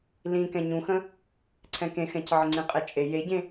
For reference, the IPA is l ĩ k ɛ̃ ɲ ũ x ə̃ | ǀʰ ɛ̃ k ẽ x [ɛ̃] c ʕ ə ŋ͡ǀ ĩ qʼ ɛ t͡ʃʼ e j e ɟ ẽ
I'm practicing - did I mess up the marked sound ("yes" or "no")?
no